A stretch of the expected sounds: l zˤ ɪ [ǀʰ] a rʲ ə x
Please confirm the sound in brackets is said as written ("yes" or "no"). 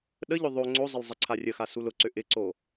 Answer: yes